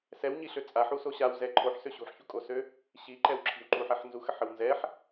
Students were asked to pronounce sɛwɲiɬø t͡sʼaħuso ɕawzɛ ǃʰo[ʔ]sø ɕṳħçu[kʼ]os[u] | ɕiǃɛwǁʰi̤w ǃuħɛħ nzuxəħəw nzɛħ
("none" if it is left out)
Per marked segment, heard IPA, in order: ħ, kʼ, ø

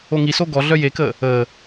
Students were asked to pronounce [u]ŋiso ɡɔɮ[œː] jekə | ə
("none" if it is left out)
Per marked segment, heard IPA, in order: o, œ

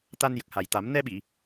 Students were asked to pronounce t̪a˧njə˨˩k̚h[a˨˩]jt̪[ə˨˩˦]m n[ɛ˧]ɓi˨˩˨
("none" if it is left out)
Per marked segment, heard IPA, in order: a˨˩, a˨˩˦, ɛ˧

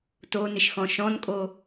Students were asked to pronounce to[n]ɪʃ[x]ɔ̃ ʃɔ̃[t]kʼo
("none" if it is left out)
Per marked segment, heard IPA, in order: n, x, n

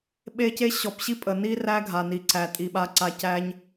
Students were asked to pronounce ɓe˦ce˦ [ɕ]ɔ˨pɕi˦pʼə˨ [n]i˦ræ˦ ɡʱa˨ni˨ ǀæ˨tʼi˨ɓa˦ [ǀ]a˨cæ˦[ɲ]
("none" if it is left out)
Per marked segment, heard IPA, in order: ɕ, n, ǀ, ɲ

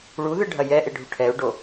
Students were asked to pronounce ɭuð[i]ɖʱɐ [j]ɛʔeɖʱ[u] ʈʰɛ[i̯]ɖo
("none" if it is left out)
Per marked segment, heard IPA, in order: ɨ, j, u, u̯

